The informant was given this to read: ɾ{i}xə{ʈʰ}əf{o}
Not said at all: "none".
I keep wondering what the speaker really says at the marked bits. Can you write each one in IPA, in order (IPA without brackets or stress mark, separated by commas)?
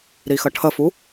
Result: i, ʈʰ, u